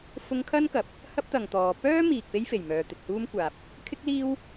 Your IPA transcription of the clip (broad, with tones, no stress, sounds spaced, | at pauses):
f ʊ˧ ŋ kʰ ɐ˥ n k ɐ˨ p̚ | h ɐ˥ p̚ t̪ ɐ˨ ŋ t̪ ɔː˨˧ p œː˥ m iː˨ k̚ p e˥ j f e˨˩ j m œː˨ t̪ ɪ˨ k̚ h uː˥ m kʷ aː˨ p̚ | kʰ ɪ˥ k̚ l iː˥ w